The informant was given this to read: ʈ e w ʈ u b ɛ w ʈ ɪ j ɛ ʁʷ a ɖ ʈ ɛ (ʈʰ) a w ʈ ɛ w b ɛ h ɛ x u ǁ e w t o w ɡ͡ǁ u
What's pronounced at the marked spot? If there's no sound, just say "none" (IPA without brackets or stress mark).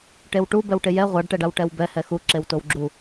ɖ